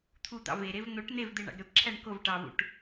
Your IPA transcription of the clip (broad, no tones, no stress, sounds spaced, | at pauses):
t̪ʰ u d̪ ɑ̰ v e ɾ e v n̪ o ʈ n̪ e v d̪ e ɳ ɑ̰ ɡ ɾ ø p ǁʰ æ ɳ k o v ʈ ɑ v ṵ ʈ